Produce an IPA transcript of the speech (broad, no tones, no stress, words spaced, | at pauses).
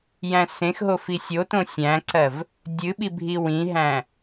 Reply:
jæ̃sẽxɦo fisʲotõ sʲæ̃ǀɜv | dʲɨɓibʱi wĩɦæ̃